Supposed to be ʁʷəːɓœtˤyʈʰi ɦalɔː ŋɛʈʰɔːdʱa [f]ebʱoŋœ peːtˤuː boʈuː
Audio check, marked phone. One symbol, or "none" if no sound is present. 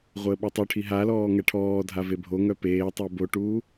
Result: v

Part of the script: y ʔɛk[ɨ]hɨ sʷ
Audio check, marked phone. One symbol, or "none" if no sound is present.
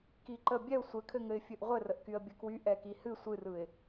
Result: i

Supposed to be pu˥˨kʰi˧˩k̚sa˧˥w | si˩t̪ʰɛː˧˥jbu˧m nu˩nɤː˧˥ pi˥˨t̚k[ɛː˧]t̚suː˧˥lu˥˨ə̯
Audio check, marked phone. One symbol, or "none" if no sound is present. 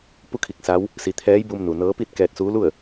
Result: ɛː˧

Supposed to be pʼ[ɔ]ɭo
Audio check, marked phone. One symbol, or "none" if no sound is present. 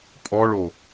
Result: ɔ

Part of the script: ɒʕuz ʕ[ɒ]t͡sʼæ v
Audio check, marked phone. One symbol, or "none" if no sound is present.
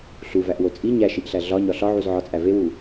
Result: ɒ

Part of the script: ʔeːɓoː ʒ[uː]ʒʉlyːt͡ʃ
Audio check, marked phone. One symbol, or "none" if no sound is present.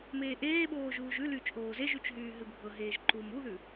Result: uː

